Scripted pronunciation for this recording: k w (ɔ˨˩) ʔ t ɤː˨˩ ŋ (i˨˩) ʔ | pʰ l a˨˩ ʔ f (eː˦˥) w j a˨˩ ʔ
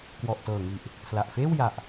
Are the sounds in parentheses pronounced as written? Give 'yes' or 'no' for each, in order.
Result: yes, yes, no

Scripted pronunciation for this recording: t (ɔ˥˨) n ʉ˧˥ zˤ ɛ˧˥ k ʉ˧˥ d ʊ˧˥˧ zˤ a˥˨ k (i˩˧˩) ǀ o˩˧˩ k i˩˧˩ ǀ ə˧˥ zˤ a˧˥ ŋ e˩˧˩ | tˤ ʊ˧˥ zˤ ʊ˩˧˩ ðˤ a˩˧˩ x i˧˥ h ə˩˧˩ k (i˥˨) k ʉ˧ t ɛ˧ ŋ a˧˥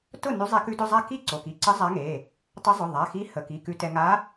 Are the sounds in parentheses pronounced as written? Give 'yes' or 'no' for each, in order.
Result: no, no, no

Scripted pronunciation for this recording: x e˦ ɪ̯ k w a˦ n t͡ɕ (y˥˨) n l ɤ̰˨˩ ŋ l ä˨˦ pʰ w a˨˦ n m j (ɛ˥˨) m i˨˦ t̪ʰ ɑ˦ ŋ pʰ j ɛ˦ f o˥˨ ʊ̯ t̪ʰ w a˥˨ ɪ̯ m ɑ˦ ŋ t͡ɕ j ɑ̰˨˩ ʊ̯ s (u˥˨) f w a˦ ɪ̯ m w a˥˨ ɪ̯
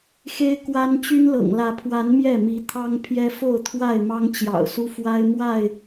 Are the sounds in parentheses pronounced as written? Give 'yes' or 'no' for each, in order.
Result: no, yes, no

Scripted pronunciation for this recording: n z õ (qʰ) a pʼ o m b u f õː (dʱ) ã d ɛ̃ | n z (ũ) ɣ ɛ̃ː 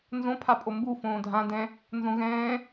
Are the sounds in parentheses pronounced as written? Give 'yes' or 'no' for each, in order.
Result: no, yes, no

